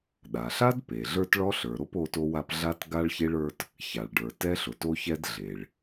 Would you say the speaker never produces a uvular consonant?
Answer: yes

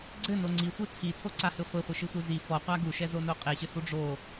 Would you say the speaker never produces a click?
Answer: no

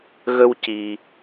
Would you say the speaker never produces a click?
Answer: yes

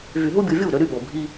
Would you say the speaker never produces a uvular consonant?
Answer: yes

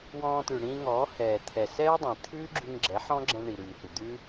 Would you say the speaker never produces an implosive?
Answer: yes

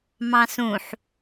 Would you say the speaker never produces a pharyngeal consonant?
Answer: no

